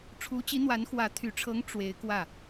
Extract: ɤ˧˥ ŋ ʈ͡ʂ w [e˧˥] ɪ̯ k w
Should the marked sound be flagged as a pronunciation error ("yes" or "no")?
no